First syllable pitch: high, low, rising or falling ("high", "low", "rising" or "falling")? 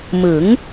rising